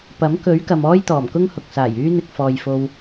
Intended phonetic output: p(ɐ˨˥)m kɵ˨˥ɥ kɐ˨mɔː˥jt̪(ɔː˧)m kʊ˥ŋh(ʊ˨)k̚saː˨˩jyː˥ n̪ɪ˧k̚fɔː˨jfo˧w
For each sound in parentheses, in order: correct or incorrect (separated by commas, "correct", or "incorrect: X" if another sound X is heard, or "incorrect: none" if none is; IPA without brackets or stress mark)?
correct, incorrect: ɔː˨˩, correct